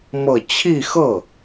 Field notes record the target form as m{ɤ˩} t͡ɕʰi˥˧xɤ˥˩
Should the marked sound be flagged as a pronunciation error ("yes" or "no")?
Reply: yes